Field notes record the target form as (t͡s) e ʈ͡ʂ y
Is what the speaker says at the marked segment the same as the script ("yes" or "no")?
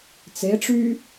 yes